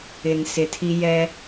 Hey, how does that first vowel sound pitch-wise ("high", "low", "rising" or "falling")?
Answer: low